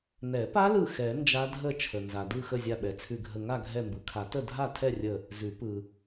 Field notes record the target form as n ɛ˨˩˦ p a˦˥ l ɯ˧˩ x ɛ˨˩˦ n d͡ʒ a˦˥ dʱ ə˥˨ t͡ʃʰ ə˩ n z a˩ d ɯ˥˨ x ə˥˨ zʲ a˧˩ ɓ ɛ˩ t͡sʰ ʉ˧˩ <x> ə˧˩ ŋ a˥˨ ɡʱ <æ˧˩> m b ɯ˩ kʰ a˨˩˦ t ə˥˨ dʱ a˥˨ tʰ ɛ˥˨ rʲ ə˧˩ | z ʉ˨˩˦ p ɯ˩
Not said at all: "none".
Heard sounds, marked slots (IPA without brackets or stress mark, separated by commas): ɡʱ, ɛ˧˩